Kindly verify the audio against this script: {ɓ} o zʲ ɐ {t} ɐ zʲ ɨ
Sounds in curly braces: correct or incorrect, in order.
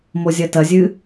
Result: incorrect, correct

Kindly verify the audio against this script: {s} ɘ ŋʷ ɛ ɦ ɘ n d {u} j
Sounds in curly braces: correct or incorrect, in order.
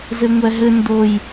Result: incorrect, incorrect

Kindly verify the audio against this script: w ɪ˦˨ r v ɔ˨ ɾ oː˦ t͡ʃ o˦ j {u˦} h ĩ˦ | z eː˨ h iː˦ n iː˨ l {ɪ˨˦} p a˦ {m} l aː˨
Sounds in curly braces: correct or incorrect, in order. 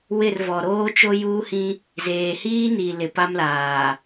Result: incorrect, correct, correct

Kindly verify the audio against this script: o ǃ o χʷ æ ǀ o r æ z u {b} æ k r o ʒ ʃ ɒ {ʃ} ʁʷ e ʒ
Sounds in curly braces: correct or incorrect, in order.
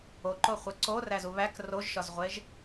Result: incorrect, incorrect

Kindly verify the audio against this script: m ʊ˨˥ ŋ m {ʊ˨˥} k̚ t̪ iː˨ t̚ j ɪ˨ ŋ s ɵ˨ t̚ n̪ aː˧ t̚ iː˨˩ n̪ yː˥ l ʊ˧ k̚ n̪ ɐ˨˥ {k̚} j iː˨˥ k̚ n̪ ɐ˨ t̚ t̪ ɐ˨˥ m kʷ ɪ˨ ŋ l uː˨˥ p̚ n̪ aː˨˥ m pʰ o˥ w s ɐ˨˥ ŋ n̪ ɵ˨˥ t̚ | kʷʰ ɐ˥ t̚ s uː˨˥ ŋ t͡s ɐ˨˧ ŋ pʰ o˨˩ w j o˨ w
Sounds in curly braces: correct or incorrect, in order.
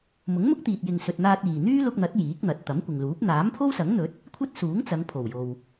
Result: incorrect, incorrect

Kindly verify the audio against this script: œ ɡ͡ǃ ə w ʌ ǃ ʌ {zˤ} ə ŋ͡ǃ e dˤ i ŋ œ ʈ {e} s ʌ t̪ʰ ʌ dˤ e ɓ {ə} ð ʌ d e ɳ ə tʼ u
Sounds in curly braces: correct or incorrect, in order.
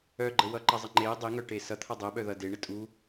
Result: correct, correct, incorrect

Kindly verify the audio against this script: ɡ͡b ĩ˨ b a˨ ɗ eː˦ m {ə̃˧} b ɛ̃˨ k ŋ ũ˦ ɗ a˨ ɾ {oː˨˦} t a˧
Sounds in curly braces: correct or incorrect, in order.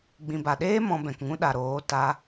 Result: incorrect, correct

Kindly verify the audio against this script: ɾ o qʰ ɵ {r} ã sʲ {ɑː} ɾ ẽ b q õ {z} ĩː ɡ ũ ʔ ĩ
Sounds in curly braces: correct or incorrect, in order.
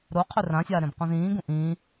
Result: correct, incorrect, correct

